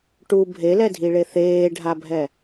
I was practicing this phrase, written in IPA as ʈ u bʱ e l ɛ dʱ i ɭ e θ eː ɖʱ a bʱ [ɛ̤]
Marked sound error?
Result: yes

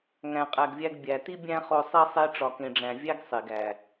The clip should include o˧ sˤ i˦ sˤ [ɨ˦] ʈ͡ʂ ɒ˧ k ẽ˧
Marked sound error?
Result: yes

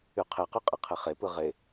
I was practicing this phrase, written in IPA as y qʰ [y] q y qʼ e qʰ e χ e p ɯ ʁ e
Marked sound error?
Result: yes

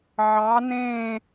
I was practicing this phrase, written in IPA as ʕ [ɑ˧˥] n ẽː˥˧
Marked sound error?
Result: no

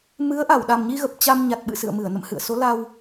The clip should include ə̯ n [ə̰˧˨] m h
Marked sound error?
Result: no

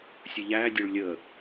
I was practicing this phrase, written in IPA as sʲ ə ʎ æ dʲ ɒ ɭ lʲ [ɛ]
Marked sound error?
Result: yes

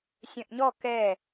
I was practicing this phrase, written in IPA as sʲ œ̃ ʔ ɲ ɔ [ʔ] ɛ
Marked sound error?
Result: yes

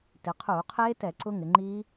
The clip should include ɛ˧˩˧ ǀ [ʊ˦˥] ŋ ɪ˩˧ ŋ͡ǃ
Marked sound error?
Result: no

